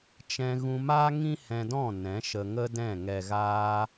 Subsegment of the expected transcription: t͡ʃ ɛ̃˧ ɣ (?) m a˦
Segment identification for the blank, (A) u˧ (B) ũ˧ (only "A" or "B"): B